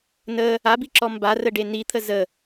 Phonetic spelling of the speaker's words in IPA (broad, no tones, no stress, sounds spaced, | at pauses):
n ə | a b i ǁ ɔ m b a r ə ɖ e n i t̪ʰ ə z ə